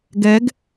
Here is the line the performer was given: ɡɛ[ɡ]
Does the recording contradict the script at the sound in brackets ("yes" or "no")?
no